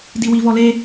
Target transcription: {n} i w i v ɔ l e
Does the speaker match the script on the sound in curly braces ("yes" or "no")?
no